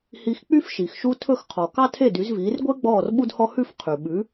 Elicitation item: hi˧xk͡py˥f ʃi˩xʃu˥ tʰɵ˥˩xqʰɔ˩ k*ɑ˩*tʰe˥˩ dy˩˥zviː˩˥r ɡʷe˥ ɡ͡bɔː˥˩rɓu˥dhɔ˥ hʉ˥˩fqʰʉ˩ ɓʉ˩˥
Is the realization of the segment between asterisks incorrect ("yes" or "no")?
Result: yes